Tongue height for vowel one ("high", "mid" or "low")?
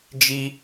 high